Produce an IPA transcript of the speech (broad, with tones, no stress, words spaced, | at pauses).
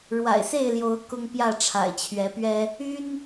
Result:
ɻwa̰˨˩ɪ̯se˥˨ɪ̯ljo˨˦ʊ̯ kʊ˦ŋpjä˥˨ ʈ͡ʂʰa̰˨˩ɪ̯t͡ɕʰɥɛ˨˦pɥɛ˦ | y˦n